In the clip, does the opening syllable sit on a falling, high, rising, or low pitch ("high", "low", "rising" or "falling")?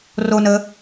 high